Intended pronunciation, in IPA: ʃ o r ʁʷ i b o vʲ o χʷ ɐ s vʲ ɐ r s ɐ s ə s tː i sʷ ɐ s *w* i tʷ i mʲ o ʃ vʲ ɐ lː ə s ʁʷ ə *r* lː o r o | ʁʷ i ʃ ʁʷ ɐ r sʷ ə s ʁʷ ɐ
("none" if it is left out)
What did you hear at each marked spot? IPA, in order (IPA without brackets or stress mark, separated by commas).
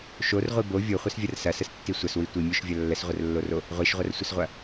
w, r